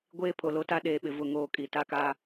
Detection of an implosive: present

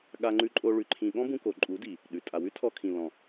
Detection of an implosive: present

